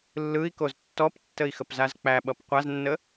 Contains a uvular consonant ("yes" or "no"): yes